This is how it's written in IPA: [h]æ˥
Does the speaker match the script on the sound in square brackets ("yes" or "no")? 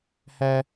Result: yes